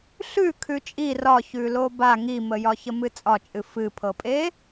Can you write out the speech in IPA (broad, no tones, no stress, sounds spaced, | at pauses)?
ɬ ʉ kʰ ʉ t͡ʃʼ i r ɒ ç ʉ l o b a ŋ i m ə j ɒ ç ə m ɨ t͡sʼ ɒ t͡ʃʼ ɨ f ɨ pʰ ɤ pʼ e